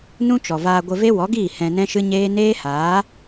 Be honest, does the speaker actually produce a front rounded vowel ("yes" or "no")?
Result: no